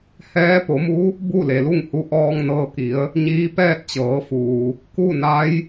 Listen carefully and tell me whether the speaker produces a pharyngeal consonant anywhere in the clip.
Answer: no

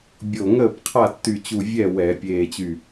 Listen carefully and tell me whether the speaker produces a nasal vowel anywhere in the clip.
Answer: no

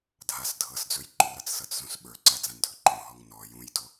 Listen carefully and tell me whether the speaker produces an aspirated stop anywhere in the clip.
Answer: no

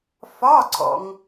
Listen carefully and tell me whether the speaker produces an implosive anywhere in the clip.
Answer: no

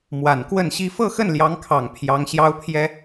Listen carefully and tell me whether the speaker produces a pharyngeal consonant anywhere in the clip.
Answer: no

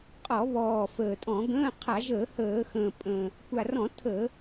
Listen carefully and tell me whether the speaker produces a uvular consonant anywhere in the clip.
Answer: yes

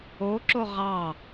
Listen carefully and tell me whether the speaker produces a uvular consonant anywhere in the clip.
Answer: yes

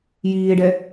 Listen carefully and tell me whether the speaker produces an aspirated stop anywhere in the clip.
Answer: no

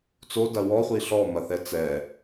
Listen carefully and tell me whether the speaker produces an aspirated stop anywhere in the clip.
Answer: no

